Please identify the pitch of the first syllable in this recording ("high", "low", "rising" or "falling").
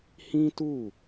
high